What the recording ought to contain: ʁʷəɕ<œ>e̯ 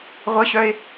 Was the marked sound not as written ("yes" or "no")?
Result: no